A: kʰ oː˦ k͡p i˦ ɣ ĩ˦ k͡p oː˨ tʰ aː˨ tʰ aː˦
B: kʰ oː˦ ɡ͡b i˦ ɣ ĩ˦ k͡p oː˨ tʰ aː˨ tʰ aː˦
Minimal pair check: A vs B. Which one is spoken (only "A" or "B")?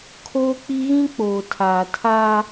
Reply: A